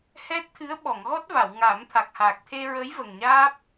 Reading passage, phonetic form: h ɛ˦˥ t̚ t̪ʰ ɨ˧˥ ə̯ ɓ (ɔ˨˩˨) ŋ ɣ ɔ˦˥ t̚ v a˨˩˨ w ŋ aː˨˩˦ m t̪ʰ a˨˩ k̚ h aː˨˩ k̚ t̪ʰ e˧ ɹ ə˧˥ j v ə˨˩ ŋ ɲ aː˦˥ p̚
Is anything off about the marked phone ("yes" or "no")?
no